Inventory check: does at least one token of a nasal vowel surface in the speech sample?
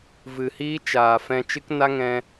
yes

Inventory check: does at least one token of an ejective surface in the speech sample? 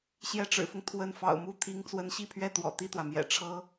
no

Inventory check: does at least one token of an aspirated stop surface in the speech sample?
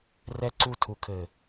yes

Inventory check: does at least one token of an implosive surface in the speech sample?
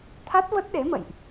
yes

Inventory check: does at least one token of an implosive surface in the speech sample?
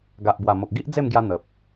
no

